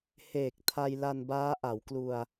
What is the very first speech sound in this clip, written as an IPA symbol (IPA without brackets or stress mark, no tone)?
h